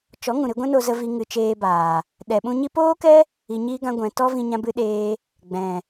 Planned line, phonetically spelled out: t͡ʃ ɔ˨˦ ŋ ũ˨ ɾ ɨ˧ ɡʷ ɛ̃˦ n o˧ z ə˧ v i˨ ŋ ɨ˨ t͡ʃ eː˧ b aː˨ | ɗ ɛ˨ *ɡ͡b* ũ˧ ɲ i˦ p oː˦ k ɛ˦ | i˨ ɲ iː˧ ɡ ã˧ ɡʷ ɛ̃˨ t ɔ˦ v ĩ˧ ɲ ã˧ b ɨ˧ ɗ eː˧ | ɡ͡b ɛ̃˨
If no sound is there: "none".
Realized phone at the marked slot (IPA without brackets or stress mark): ɓ